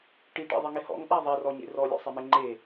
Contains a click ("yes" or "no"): yes